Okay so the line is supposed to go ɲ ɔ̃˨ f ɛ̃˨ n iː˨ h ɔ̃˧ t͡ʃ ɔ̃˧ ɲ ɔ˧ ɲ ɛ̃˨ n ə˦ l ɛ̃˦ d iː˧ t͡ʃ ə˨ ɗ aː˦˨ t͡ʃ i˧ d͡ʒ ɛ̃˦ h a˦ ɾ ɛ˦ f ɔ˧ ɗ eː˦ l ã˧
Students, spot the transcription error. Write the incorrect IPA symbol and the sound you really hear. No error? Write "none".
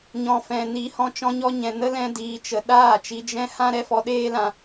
a˦ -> ã˦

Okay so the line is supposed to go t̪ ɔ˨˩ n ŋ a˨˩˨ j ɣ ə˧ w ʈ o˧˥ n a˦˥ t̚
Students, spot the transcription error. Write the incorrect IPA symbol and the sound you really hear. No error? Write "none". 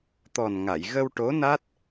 none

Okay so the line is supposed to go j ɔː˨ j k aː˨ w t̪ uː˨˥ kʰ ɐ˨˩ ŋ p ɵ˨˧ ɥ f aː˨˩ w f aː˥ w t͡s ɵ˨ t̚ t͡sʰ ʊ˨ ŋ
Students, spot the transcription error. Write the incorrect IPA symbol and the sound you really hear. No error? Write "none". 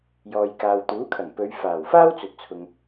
none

